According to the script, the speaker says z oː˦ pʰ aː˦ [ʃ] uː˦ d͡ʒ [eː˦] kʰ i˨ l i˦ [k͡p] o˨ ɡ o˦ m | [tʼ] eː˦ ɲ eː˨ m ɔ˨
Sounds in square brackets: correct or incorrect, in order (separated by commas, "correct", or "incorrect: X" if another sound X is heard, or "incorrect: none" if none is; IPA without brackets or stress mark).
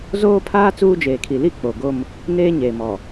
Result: incorrect: t͡s, incorrect: eː˨, correct, incorrect: n